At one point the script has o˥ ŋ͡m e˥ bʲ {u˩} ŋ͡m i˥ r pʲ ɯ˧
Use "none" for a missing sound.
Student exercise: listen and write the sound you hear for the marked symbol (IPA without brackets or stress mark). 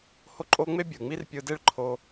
ɯ˩